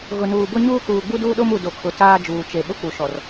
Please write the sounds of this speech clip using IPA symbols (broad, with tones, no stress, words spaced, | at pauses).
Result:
ɣʊ˨nuː˨bʊ˦ɲuː˦ kuː˨ɡ͡bu˦duː˦ɗo˦m u˨do˨kʰʊ˨ taː˦d͡ʒuː˨t͡ʃe˨ ɓʊ˦k͡pu˨ ʃɔ˨r